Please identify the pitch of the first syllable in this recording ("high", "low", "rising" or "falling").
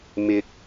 low